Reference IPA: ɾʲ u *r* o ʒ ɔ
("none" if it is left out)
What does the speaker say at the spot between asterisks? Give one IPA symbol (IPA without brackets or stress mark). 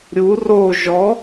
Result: r